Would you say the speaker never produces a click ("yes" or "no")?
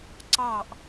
no